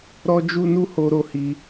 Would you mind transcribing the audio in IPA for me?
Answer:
ɾ ɔ˦ d͡ʒ u˦ n u˦ h o˦ ɾ o˦ h i˦

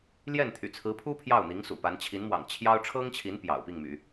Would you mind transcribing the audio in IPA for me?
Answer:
l j ɛ˥˩ n t̪ʰ y̰˨˩ t͡sʰ ɹ̩˧˥ pʰ u˥ pʰ j ɑ˥˩ ʊ̯ n̪ i˧˥ ŋ s ṵ˨˩ p a˧˥ n t͡ɕʰ i˧˥ n m w ɑ̰˨˩ ŋ t͡ɕʰ j ɑ˥ ʊ̯ ʈ͡ʂʰ ɤ˥ ŋ t͡ɕʰ i˧˥ n p j ɑ̰˨˩ ʊ̯ p i˥˩ ŋ m y̰˨˩˦

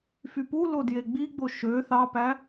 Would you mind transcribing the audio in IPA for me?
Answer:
f y p u l o d j e ɡ͡b i ɡ͡b o ʃ ø θ ɑ p æ

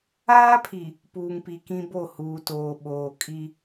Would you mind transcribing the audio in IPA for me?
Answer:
aː˦ pʰ i˨ | p uː˨ ŋ p i˨ k ĩ˦ b o˦˨ h uː˨ t oː˨ ɓ oː˨ kʼ i˦

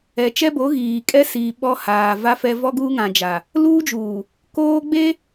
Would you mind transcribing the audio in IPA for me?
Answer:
ɛ˨ t͡ʃ ɛ˦ b o˨˦ ɣ iː˨ kʼ ɛ˦ s iː˨ ɓ ɔ˦ h aː˨ v a˦ f ɛ˦ v ɔ˦ ɡ uː˦ ŋ ã˨ d͡ʒ a˨ | l uː˦ d͡ʒ uː˨ | k oː˦ ɡ͡b e˦

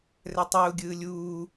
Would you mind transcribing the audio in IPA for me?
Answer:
r ɛ tˤ uː ɡʲ ɯː lʲ uː

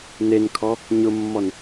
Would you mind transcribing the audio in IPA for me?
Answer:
n e n kʰ ɔ | ɲ ʊ mː ɔ n

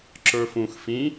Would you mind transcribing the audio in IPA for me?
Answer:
ǁ ə˞ f ũ x f ĩ

